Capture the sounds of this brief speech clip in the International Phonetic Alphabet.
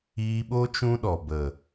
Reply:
iː˧ ɓ o˦ t͡ʃ ũ˦ ɗ ɔ˨ b ə˨

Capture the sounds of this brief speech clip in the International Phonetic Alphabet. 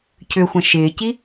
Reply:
cʰ ʏ xʷ ɐ̃ ʃ ɪː c i

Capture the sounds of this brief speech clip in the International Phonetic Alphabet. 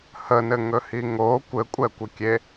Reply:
h ə n ɘ ŋ ɵ h i ŋ o kʷ ɘ kʷʼ ɛ kʷ ə kʲ e

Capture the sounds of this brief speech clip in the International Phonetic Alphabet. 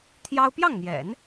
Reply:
t̪ʰ j ɑ˥ ʊ̯ p j ɑ˥˩ ŋ n̪ j ɛ̰˨˩˦ n

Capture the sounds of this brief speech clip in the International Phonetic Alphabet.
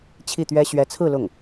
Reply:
t͡ɕʰ i˥˩ t̪ ɥ ɛ˥ ɕ ɥ ɛ˧˥ t͡sʰ ɹ̩˥˧ l ʊ˥˩ ŋ

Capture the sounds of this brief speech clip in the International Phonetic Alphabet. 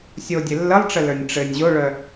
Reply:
sʲ o dʲ ɘ lː ə lˠ ʈ͡ʂ ə l ə˞ nʲ ʈ͡ʂ ɘ nʲ ʑ o ɭ œ

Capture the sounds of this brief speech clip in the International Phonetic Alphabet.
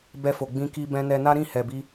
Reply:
b ɛ˧ f o˨ ɡ͡b ĩ˧ k i˧ b ɛ̃˧ n ɛ˧ n a˦ ɾ ĩ˦˨ h ɛ˨ b i˧

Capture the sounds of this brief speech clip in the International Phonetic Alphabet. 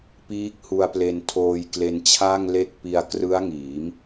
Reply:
p iː˦˥ k̚ h u˧ a̯ p l e˧ n tʰ oː˧ j k l e˧ n t͡ɕʰ a˥˩ ŋ l e˦˥ k̚ p i˧ a̯ k r ɯ˦˥ a̯ ŋ iː˩˦ m

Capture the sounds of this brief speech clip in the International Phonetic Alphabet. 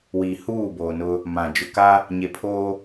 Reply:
w iː˨ h uː˦˨ b oː˨ n ʊ˦ | m ã˨ d͡ʒ ʊ˨ k a˦ | ɲ e˨ pʰ oː˦

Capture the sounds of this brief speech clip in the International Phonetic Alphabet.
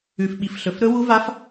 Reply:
ʉ˨ f ɓ i˨ f ɬ ɵ˨ f ɾ ɵ˦˥ w u˦˥ v a˦˥ f

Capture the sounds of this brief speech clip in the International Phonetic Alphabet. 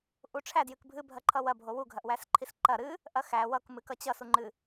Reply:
ʔ u ʈ͡ʂʰ æ d j ɨ k bʱ ɨ bʱ ɐ ǃʰ ʌ w ɐ bʱ o w u ɡʱ ɐ ʔ w æ s ǃʰ i s ǃ ɐ ɾ ɨ | ʔ ɐ x æ w ʌ k m ɨ k ʌ t͡ɕ ʌ s u ŋ͡ǃ ɨ

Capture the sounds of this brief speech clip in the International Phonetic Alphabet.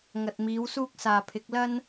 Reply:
ŋ ɐ˨ t̚ m iː˨˥ w s uː˥ k̚ s aː˨ pʰ ɪ˨˥ k̚ l ɐ˥ n

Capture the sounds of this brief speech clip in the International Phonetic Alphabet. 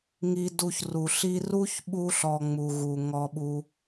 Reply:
ŋ i˧ d u˧ ç r u˨ ɬ i˧ r u˦ ç ɓ u˧ ɬ ɔ˧ ŋ͡m u˨ ɣ u˨ ŋ ɔ˧ ɓ u˧

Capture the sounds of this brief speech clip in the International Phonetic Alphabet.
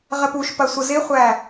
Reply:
ʁ ɘ p u ʃ p ɐ sʷ ə z ɪ χʷ æ

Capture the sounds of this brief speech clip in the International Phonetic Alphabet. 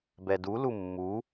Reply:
b ɛ d u l u mː u

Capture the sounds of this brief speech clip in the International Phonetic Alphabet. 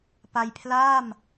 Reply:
p a˧ j pʰ l aː˥˩ m

